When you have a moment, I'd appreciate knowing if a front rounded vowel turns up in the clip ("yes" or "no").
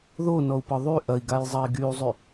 yes